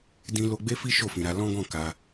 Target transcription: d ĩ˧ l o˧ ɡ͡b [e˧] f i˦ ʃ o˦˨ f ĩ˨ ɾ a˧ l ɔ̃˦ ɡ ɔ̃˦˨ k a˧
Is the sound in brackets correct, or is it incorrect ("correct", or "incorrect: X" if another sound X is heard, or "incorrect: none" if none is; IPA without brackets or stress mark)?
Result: incorrect: e˦